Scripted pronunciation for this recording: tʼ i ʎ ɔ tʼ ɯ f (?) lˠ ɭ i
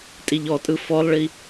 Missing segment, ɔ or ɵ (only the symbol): ɔ